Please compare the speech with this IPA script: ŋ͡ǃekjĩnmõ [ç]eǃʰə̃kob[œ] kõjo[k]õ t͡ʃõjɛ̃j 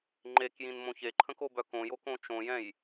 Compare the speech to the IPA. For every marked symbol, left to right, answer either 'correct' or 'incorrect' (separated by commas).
correct, correct, correct